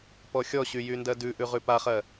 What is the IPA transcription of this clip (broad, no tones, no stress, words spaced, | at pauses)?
pɔxʲɔɕy jyndɜdʉʔʉ ʁʉpaχɜ